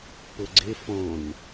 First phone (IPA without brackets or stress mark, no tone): p